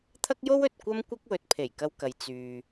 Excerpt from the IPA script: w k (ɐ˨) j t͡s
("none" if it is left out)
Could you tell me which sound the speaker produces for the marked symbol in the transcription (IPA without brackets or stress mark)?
ɐ˨